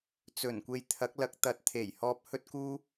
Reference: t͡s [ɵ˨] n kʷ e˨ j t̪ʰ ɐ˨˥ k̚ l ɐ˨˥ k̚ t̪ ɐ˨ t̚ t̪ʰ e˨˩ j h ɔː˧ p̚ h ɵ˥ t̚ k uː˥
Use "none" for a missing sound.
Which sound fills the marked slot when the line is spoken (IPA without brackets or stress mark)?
ɵ˨˩